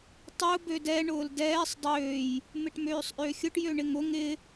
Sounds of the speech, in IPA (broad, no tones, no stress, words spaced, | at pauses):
tˤʊː bødɛ ɳʊːldɛːsˤ dˤøːj | mɪʈmøːsˤʔøxʲʊʈ jøɳɪŋʊ ŋɪ